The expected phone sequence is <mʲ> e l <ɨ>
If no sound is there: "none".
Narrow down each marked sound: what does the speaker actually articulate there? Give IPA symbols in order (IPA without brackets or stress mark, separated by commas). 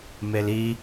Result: m, i